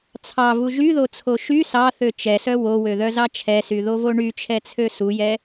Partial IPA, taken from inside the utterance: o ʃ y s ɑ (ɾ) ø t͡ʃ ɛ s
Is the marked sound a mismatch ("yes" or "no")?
yes